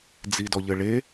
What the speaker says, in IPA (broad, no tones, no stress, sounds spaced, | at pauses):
d͡z i d ɔ ʎ ɘ ɭ e